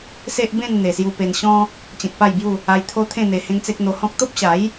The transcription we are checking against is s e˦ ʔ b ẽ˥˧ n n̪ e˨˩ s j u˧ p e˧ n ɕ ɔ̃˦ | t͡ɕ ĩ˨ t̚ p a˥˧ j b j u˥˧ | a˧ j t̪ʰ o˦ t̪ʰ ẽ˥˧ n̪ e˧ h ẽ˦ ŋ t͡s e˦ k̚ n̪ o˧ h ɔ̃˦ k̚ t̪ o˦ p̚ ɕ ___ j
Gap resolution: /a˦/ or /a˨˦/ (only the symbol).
a˨˦